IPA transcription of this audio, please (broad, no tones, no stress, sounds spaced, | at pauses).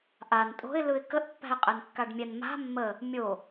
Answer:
ʔ a n tʼ o̤ ɪ̯ l ɯ ɪ̯ k ə ʔ pː æ̤ ɪ̯ qʼ ɛ n kː a ɖ mʲ ɛ n m a̤ mː ə | mʲ o